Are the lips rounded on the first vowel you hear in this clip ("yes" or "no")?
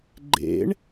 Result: no